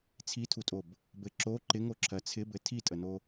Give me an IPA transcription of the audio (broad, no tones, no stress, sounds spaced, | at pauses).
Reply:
t͡sʰ i tʰ u tʼ o b | b ɘ ǁ o ǃ ɪ ŋ o ǁʰ ɜ t͡sʰ ɪ b ɘ tʰ i tʼ ə n o